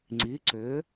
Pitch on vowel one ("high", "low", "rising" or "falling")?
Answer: rising